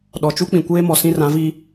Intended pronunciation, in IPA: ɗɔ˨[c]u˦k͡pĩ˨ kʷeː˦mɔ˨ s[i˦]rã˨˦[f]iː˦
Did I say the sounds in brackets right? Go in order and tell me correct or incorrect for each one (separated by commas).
incorrect, incorrect, incorrect